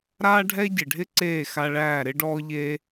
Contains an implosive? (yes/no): no